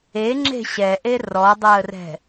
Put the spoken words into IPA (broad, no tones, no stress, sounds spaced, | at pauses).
e ŋ͡ǁ e̤ ɕ ɛ ʔ e r ɔ dˤ əː r ɛ̤